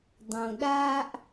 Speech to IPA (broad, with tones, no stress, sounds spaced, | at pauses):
dˤ õ˨ ɗ aː˦ ʔ